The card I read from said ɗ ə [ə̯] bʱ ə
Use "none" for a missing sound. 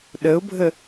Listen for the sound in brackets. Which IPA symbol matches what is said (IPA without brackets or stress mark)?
ʊ̯